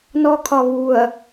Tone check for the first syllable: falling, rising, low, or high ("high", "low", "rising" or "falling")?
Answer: high